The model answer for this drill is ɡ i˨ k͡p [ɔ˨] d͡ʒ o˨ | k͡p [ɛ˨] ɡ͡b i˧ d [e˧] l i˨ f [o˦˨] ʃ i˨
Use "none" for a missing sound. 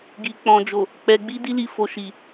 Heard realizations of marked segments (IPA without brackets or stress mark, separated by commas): ɔ̃˨, ɛ˨, i˧, o˨